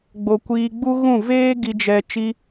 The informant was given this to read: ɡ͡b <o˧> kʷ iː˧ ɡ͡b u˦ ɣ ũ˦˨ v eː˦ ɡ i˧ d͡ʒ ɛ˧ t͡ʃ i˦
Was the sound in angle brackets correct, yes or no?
yes